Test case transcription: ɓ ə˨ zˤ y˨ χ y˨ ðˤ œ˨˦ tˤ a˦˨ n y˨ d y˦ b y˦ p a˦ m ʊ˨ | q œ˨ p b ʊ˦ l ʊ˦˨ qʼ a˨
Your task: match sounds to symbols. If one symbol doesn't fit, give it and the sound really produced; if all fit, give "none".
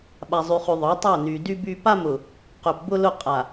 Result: ə˨ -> a˨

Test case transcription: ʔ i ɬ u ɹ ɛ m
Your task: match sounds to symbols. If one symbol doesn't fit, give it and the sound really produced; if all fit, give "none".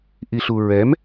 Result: none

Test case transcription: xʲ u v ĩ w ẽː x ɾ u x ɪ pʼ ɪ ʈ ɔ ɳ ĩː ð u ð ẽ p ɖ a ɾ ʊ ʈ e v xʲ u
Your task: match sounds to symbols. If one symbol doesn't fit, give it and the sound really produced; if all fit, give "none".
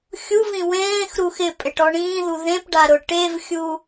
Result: none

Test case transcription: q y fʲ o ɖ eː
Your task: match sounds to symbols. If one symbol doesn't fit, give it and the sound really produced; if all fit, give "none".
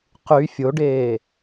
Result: none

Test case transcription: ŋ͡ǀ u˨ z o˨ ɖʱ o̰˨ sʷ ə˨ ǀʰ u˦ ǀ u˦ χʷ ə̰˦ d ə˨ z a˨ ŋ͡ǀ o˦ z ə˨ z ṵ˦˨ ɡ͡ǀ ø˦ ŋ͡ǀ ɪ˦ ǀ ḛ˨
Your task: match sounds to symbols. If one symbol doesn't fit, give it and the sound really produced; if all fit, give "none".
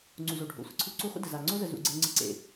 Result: ø˦ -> e˦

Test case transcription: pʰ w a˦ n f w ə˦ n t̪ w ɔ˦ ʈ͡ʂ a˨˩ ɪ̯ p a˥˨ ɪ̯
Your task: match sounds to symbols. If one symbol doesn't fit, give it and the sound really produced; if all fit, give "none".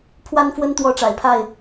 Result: p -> pʰ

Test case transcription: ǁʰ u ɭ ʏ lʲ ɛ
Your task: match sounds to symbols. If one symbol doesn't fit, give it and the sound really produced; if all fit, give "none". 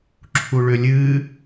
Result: ɛ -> ɨ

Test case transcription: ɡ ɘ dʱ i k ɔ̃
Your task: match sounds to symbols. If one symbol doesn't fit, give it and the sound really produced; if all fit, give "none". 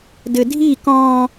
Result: ɡ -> d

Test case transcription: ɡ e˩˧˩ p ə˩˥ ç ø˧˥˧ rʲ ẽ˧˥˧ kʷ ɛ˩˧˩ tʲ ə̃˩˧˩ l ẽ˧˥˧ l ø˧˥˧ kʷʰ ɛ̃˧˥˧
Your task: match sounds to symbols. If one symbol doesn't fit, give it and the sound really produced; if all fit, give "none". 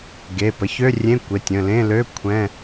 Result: ɛ˩˧˩ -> e˩˧˩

